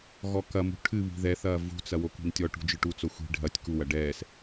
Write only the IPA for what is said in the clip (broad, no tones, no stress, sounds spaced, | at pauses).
ɣ ɔ k ɐ m ṳ ʈʰ ɨ β i̤ ð ɛ θ ɐː v ṳ t͡s ɐ w o k i̤ n tʲ ɔ ʈ ṳ d͡ʒ ɨ ʈ u t͡s o xʷ i̤ ɖʱ ɐ tʲ k u w ɐ ɖ ɛː s